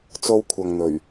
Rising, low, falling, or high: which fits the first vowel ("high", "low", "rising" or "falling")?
high